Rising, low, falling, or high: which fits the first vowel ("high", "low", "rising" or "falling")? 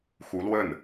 rising